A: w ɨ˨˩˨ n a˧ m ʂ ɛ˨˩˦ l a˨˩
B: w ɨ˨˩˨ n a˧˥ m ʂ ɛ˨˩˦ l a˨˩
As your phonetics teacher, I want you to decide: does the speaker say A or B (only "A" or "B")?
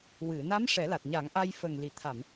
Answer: B